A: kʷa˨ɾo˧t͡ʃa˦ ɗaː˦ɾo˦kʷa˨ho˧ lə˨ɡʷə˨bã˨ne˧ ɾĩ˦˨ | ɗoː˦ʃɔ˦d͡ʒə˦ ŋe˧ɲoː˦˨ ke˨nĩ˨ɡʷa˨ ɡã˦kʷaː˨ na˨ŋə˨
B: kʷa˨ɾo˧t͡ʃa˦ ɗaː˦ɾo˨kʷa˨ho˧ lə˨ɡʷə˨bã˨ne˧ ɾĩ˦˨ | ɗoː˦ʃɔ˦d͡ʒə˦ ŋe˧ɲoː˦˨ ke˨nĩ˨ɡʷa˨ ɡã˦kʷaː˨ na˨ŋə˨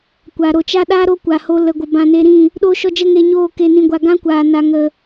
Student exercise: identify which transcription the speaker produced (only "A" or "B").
A